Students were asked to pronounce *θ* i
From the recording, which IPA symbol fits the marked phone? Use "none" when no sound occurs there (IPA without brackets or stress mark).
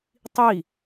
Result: tˤ